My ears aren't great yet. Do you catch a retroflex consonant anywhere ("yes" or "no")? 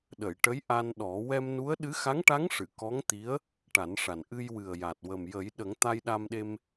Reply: yes